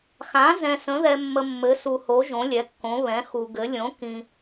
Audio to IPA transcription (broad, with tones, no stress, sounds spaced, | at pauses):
x ã˩˥ z ɛ̃˨ s ə̃˩˥ ð ɛ˨ mː ə˨ mː ɘ˩˥ s u˨ h o˩˥ ʒ õ˩˥ lʲ ɛ˩˥ kː õ˩˥ β ɛ̃˩˥ x u˨ ɡ ɘ˩˥ lʲ õ˩˥ k ĩ˨